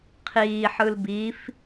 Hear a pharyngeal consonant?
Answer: yes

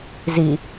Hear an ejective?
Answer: no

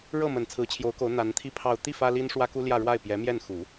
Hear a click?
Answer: no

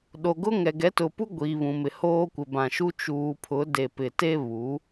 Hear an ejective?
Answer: no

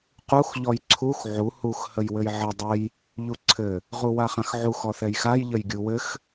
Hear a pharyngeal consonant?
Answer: yes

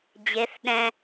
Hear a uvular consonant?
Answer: no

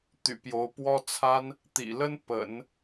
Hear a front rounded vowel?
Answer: yes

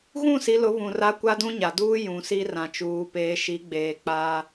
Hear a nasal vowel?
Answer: yes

